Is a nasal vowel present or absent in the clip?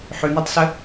absent